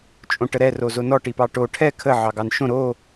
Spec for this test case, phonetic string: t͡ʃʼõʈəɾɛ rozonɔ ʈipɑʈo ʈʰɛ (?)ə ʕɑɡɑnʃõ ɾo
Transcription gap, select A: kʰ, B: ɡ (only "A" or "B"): A